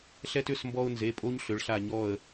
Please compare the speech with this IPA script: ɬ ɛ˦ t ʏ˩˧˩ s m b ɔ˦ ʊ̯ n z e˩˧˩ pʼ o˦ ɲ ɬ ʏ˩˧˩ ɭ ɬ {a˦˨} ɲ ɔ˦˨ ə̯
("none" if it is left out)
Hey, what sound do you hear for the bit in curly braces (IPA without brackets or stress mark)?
a˦˨